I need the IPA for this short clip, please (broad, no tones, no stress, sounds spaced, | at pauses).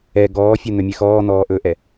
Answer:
ɛ ɡ ɔː fʲ ɛ n̪ œ mʲ ɛ x ɔː n̪ ɔː ʔ ɵː ʔ ɛ